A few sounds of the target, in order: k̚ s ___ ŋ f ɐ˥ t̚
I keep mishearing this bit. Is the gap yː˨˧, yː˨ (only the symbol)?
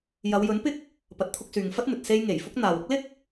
yː˨